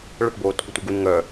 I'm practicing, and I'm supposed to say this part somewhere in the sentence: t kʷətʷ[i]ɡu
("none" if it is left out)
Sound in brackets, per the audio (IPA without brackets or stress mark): i